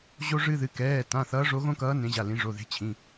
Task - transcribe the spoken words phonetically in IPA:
ʑ o˦ ʐ ɨ˦ ð ɨ˩˧˩ k ɛː˩˧˩ t ã˩˧˩ θ ʌː˨˦ ʐ o˨˦ ɣ õ˦ k ʌː˨˦ n ẽ˨˦ ʑ a˩˧˩ l ĩ˨˦ ʐ o˩˧˩ ð e̤˨˦ t͡ɕʰ ĩ˩˧˩

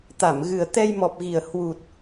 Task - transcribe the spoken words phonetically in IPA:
t̪ a˧˩ m ɣ ɨ˨˩ ə̯ t̪ ɛ˧ j m ɔ˨˩ p̚ ɣ i˨˩ ə̯ h w u˨˩ t̚

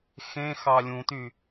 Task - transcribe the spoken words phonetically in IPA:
x ẽ x ɑ lʲ ũ t y

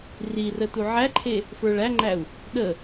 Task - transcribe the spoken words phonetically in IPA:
r i r ə t u ʕ æ ǃʰ e | f ə˞ ɭ æ ŋ͡ǃ æ u̯ | ɗ ə

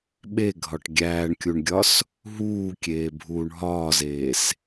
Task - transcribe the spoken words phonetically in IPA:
ɓ e ɡʱ ɒ ʈ ɡʲ æː ɳ kʲ u ɳ ɡʲ ɒ s | ɦ uː kʲ eː bʱ uː ɳ ɦ ɒː z eː s

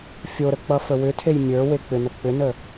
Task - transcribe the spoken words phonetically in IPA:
fʲ o ɾ ə k͡p ʌ f ə w ʏ tʰ e j mʲ ə˞ w e k͡p ʏ n ə k͡p ʏ n ə

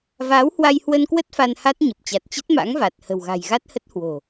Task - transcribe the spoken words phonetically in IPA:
v aː˨˦ w h w a˧ j h w ə˧ n k w ə˦˥ t̚ f a˧ n h a˦˥ t̚ ɲ ə˨˩ p̚ t͡ɕ a˨˩ t̚ t͡ɕ ə˦˥ t̚ m a̰˧˥ ŋ v a˨˩ t̚ h ə̤˨˩ w ɣ a̤˨˩ j ɣ a˦˥ t̚ h ə˦˥ t̚ h w o̤˨˩

